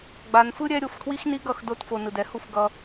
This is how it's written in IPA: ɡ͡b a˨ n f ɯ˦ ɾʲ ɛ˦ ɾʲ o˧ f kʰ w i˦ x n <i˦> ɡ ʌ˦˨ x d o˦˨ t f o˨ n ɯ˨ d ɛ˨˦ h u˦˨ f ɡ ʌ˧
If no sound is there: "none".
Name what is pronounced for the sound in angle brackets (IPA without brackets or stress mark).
i˦